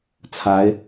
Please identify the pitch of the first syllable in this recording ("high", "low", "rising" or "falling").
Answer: rising